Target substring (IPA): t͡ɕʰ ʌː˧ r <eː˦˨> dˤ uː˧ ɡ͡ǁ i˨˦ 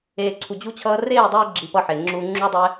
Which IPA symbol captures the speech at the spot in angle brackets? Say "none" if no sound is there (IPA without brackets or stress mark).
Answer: eː˦˨